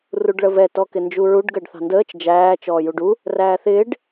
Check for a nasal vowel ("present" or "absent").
absent